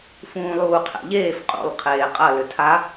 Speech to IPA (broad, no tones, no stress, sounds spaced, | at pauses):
f ũː lˠ uː qʰ ɛ̰ ʎ eː f qʼ ṵ lˠ qʰ eː qʼ ɐ l ʏ tʰ a